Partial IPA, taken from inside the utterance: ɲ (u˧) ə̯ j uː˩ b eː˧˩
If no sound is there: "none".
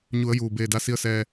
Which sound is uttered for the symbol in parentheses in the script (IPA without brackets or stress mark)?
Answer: u˩˧